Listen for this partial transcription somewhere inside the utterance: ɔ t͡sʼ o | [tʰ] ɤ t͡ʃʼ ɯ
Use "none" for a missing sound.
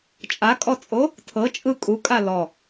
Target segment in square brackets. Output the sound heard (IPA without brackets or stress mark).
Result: tʰ